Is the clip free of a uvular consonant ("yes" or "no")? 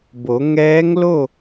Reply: yes